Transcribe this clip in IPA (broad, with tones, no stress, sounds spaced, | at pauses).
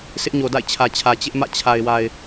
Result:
sʰ ɪ˦ ʔ ɲ o˨ d a̰˦˨ ɪ̯ t͡ɕʰ ä˨ t͡ɕʰ ä˨ t͡ɕ ɪ˦ ʔ m ä̰˦˨ t͡ɕʰ a˨ ɪ̯ w a˨ ɪ̯